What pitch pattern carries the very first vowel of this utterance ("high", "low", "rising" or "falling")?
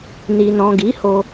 low